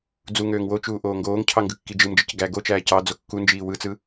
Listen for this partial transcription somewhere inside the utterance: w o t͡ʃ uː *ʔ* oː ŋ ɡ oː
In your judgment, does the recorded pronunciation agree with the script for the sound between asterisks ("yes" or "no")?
yes